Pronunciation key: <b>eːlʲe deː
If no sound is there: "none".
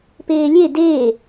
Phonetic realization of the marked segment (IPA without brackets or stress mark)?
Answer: p